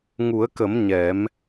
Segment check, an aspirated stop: absent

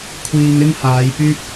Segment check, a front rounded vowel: present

